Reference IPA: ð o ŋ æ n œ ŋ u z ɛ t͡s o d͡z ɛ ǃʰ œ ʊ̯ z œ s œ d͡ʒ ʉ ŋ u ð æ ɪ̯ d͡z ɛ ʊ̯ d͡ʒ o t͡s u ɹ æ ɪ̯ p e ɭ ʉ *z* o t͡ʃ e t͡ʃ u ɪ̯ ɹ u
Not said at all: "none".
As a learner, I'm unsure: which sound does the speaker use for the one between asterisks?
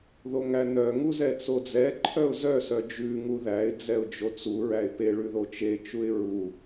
ð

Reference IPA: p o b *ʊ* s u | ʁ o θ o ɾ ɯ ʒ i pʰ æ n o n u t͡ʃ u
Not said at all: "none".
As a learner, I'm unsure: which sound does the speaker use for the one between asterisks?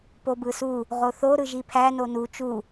ɯ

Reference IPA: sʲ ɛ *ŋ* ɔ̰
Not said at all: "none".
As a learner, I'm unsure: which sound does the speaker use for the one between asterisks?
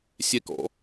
k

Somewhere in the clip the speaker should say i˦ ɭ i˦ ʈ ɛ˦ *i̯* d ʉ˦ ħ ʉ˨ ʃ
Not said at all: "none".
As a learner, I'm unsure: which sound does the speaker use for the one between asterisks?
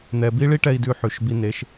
i̯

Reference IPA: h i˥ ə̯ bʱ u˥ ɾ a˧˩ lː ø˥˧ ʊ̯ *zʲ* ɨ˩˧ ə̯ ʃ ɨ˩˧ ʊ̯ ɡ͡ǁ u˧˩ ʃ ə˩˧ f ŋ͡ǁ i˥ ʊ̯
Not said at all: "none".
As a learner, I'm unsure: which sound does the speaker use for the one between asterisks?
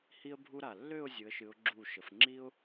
zʲ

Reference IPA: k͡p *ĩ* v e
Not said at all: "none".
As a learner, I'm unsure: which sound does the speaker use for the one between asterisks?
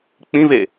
ĩ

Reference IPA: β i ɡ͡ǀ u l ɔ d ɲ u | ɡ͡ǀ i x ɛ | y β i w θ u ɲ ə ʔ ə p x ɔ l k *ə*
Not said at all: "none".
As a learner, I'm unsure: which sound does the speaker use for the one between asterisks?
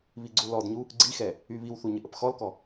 ɔ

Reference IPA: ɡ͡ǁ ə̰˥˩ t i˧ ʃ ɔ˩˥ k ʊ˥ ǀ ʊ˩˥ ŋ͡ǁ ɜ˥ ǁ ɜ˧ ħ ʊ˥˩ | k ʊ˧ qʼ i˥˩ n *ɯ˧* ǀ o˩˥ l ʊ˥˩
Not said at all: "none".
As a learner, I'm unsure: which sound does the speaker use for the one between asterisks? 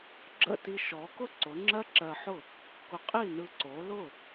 ɯ˧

